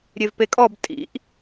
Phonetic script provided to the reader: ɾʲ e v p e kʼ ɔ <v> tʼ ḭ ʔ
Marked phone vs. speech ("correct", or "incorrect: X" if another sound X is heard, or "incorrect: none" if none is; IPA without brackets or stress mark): incorrect: b